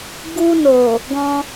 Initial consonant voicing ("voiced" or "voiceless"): voiced